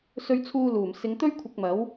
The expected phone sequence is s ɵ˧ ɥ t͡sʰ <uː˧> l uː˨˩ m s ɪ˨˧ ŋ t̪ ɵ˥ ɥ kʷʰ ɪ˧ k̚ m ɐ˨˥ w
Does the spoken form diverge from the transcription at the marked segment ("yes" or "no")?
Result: no